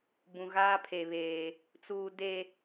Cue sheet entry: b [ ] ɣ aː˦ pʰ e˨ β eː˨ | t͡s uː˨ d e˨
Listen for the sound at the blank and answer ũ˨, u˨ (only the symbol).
ũ˨